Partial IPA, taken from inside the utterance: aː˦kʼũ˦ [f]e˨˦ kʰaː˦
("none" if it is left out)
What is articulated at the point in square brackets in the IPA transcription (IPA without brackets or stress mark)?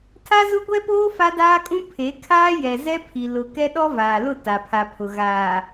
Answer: pʰ